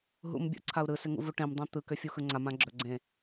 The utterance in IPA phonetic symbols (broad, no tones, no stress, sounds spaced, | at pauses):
ɦ ṵ m bʲ ṵ ǀʰ a u̯ ɾ ɯ s ɪ ŋ ṵ v u ʈ ẽ m dˤ ã t̪ ɯ k ʏ fʲ u x ɯ ŋ͡ǀ a m ã ɡ͡ǁ ɵ ɡ͡ǀ ẽ